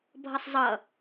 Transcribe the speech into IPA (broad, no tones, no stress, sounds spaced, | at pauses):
bʱ ʌ sˤ zˤ ʌ